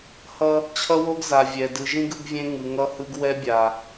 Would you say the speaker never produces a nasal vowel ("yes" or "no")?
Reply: no